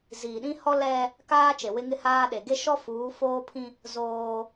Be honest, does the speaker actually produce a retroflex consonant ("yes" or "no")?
no